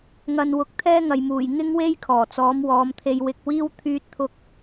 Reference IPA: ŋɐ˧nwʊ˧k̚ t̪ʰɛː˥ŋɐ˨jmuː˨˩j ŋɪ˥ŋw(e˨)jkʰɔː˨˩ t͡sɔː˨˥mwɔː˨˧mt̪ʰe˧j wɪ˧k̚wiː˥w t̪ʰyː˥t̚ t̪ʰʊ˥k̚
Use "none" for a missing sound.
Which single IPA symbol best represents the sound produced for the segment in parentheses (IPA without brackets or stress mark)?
e˥